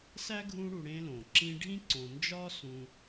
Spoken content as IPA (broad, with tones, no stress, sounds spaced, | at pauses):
s æ˥ ɡʱ ũ˦ ɽ u˨ ɽ ẽ˦ l õ˩ ǁ ĩ˦ ɖʱ ĩ˥ ǀ õ˨ n d͡ʒ ɒ˥ s ũ˨